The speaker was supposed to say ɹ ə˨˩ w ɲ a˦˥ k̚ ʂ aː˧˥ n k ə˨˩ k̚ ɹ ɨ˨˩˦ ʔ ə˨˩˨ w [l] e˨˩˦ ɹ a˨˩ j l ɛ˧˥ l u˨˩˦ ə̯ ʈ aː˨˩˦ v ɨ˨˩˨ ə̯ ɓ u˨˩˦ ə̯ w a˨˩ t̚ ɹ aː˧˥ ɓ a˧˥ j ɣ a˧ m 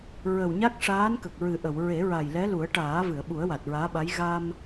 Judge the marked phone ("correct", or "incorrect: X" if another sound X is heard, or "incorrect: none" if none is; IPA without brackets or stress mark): incorrect: ɹ